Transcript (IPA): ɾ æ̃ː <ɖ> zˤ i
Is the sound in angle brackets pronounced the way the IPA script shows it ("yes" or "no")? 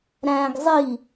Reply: no